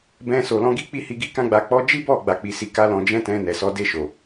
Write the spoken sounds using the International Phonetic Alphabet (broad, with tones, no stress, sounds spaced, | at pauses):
b ɛ̃˧ s o˨ l ɔ̃˧ ɡ i˦ k͡p i˦˨ h i˧ ɡ i˦ k ã˦ ɡ͡b a˧ k͡p ɔ˦ d͡ʒ i˦ b ɔ˦˨ ɡ͡b a˨ k͡p i˨˦ s i˧ k a˦ l ɔ̃˧ d͡ʒ ɛ̃˦ t ɛ̃˧ n ɛ˨ s ɔ˨˦ d e˦˨ ʃ o˨